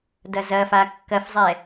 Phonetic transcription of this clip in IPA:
d ɐ z ɐ f a kː ɐ f zˤ ɛ

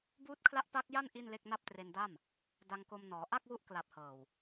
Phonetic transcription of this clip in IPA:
b uː˦˥ t̚ kʰ l a˦˥ ʔ p a˦˥ k̚ j a˥˩ n ʔ i˥˩ n l e˥˩ k̚ n a˥˩ p̚ t r e˧ n d a˥˩ m | d a˧ ŋ k o˧ m n ɔː˩˦ ʔ a˥˩ k̚ w u˦˥ ʔ k l a˨˩ p̚ h ɤː˨˩ w

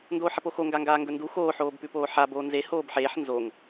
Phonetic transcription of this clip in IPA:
n d oː ħ ɐ p o x o ŋ ɡ a ŋ ɡ aː ŋ ɡ ɵ n d u x oː ħ oː b p ʉ p oː ħ a b oː n z e h oː b ħ eː ħ n z o ŋ

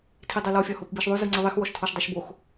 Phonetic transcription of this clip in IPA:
tʰ i dˤ e l ɔ fʲ ɒ h o p b i ʃ ðˤ ʉ z ɯ ŋ͡ǀ ɨ ðˤ i x w ɔ ʃ tʰ ɔ ʃ dˤ i ʃ b o x

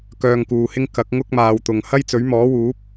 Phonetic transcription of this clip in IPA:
k œː˧ ŋ k uː˨ h ɪ˥ ŋ k ɐ˨˥ k̚ ŋ ʊ˥ k̚ m aː˨ w t̪ ʊ˨ ŋ h ɐ˥ j t͡s ɵ˨˥ ɥ m ɔː˨˥ w uː˨˥ p̚

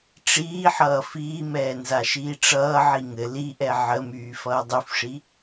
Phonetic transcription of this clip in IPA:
ʈ͡ʂ iː ħ ʌː f iː m ɛː n z a ʃ iː ʈ͡ʂ ʌː ʕ i ŋ ɘ l i ʔ ɛ ʕ ə m yː f ʌː dˤ y f ʂ i

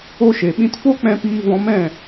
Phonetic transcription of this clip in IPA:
o˧ ʃ e˨ ɓ ĩ˧ t f o˦ k͡p ɛ̃˧ p iː˧ v ɔ̃˧ m ɛ̃˦˨

